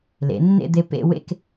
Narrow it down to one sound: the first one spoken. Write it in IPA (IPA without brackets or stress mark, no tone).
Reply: l